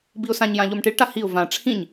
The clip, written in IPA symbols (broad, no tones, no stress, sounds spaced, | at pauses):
b i ʊ̯ s ã ɲ j ã ʎ o m ʈ i ɭ ʈ a h i ʊ̯ v ã ʈ͡ʂʰ ĩ ɲ